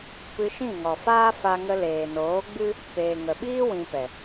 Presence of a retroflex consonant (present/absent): absent